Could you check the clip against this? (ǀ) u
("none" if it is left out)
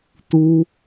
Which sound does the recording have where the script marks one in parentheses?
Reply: t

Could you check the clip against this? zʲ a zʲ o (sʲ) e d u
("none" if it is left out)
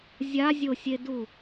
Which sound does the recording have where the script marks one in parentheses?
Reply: sʲ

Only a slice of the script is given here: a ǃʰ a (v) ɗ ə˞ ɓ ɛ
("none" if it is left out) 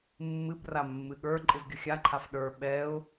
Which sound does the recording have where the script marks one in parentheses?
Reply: f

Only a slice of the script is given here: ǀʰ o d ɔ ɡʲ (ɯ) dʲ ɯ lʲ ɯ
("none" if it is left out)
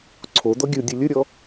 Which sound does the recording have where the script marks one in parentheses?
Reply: ɯ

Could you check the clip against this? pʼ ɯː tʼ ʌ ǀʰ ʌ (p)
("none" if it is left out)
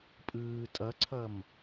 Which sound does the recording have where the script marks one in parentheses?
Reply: m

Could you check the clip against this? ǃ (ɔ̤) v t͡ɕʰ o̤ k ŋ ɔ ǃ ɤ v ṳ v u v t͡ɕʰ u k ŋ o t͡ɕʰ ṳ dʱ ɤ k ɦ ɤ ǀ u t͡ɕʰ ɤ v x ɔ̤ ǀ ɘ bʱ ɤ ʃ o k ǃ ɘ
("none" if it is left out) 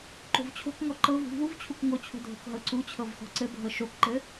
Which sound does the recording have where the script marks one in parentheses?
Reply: o̤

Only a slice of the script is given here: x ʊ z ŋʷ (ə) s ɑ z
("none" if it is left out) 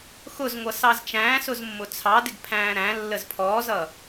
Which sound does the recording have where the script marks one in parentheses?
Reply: ʌ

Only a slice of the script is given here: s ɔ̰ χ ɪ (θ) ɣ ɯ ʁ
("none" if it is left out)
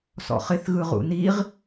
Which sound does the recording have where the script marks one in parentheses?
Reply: θ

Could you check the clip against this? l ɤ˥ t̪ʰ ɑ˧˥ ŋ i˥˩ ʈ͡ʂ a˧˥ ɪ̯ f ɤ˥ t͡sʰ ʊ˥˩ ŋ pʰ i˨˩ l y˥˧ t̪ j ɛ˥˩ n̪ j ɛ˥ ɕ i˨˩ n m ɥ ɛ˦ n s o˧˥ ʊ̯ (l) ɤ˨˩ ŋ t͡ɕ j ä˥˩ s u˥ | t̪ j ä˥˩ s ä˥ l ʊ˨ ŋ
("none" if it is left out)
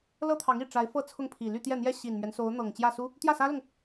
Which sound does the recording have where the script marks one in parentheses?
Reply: n̪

